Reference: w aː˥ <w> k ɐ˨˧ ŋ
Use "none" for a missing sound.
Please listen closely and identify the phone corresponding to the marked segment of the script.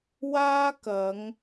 none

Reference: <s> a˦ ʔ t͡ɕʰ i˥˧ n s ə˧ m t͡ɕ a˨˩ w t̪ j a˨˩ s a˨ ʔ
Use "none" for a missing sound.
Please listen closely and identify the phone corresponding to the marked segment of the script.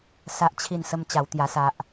s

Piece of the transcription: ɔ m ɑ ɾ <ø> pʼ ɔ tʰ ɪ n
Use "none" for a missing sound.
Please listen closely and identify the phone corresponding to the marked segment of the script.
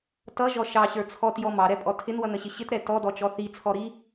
ɛ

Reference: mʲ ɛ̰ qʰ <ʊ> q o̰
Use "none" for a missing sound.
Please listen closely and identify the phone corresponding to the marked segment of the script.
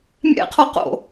ɔ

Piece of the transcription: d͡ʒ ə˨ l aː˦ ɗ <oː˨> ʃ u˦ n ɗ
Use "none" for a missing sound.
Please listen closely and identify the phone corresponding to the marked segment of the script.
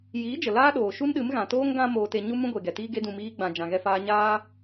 oː˨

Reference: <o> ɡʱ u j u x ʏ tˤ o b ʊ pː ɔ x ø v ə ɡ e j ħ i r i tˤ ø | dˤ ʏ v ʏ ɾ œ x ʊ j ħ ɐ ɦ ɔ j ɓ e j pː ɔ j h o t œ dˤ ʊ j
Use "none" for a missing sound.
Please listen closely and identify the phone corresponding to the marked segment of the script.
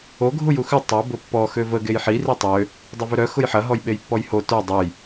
o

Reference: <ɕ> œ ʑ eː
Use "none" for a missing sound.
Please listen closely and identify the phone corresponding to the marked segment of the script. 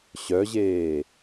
ɕ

